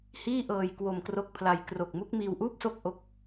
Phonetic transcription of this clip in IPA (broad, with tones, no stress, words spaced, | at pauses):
hiː˥˩ʔɤː˧j kwo˧mkro˦˥k̚pʰla˧j kro˨˩k̚mu˦˥k̚ miː˧wʔuː˥˩p̚so˥˩k̚ ʔo˥˩k̚